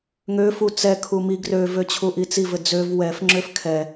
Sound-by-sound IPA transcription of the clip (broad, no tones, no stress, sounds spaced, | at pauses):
ŋ ø f u t͡s ɛ kʰ u m i ɡ r ø v ø t͡ɕʰ u ʔ i t͡s i v ɘ d͡z ø v w ɛ f ŋ͡ǁ ø f kʰ ɛ